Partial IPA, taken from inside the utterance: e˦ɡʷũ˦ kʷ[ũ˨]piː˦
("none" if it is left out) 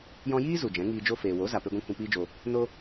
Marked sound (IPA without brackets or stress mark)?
ũ˧